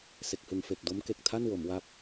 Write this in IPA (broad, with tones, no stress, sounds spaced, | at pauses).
s e˨˩ k̚ h ɯ˨˩ ŋ f e˨˩ k̚ d o˦˥ m k e˨˩ k̚ tʰ a˥˩ n w o˩˦ m w a˦˥ p̚